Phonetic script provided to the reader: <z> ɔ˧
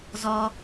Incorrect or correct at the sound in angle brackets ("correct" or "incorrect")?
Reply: correct